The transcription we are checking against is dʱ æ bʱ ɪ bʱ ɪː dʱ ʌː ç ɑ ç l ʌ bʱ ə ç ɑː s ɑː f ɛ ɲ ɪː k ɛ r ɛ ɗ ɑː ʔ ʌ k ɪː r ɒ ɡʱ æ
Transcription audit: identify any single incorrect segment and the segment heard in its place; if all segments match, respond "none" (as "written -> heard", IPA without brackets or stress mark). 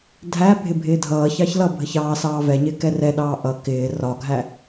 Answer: f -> v